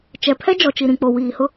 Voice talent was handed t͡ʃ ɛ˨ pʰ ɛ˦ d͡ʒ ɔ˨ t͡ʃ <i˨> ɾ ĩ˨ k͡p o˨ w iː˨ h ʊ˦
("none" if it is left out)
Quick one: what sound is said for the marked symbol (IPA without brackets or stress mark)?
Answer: i˨